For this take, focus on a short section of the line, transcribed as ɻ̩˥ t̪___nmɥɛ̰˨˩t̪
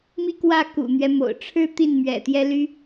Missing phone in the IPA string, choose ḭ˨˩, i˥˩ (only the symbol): i˥˩